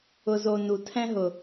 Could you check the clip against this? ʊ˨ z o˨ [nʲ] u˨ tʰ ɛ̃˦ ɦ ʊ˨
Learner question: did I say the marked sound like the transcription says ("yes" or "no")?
no